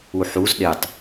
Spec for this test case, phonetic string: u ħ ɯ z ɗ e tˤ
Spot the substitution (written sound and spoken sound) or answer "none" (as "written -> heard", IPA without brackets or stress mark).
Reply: ɯ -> u